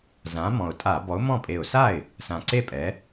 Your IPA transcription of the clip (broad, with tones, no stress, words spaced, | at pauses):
zã˨˥mɔ̃˨˩ʊ̯tʼa˧˩˧ bɔ˨˥ʊ̯mɔ̃˥˩ pʼe˨˩ʊ̯sa˥˩ɪ̯ | sã˨˩ǀe˥˩ pʼɛ˨˥